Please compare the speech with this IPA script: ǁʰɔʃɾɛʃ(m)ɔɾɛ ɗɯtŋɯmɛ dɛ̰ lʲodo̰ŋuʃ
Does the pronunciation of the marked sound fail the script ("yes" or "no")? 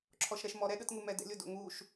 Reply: no